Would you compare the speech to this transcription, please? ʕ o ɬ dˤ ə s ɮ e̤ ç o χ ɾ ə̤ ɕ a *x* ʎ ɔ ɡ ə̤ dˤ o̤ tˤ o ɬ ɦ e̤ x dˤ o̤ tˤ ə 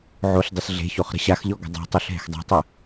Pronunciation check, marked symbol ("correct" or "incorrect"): correct